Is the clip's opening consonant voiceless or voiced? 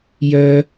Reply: voiced